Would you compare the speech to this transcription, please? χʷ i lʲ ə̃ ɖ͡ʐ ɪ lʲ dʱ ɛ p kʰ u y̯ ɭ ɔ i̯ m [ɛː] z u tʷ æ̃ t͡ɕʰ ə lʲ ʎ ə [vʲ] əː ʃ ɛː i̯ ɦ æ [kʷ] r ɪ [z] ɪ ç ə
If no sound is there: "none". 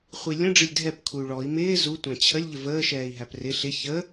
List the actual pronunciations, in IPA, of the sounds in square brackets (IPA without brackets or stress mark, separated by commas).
ɪː, v, p, ɬ